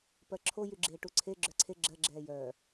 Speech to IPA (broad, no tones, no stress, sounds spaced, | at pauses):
p ɜ ǁʰ o j y ɡ͡ǁ eː ʈ u ǀʰ e ɡ͡ǁ œ ǀʰ e ɡ͡ǁ ɜ ɡ͡ǁ ɛː j œː